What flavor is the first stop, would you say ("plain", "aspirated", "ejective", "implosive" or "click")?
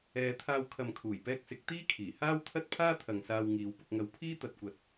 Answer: aspirated